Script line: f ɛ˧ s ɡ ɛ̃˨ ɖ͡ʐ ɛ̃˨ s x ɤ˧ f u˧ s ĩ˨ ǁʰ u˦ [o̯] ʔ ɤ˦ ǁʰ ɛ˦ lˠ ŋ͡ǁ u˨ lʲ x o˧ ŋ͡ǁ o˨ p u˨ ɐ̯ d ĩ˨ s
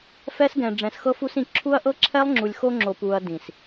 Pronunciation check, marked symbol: incorrect: ɐ̯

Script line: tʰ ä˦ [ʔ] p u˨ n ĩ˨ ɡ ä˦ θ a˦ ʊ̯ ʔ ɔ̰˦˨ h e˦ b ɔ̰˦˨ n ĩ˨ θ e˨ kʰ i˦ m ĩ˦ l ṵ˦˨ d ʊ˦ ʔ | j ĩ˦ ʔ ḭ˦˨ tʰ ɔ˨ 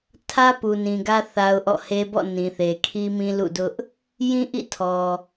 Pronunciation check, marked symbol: incorrect: none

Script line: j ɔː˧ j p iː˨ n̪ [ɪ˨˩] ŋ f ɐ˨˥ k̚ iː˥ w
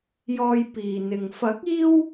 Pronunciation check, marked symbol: incorrect: ɪ˨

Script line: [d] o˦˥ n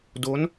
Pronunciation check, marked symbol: correct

